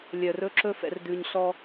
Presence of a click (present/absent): present